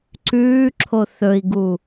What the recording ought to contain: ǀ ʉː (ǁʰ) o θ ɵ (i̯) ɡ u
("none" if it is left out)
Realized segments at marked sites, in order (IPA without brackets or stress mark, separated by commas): ǁʰ, i̯